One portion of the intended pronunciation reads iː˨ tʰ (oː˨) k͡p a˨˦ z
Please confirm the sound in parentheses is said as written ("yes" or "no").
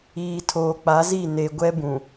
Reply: yes